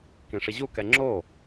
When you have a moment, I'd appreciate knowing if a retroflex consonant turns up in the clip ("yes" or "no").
yes